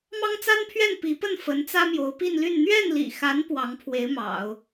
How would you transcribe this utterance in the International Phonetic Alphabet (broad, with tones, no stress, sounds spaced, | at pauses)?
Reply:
m ɑ˥ ŋ t͡s a˥ n pʰ ɥ ɛ˥˩ n p i˧˥ p ə˥˩ n f ə˧˥ n t͡s ä˥ m j o˧˥ ʊ̯ p i˥˧ n l y˥˧ n n̪ ɥ ɛ˥˩ n l ḭ˨˩ x a˧˥ n p w ɑ˧˥ ŋ pʰ w e˧˥ ɪ̯ m ɑ̰˨˩˦ ʊ̯